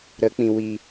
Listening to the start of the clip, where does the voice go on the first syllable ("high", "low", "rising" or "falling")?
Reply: rising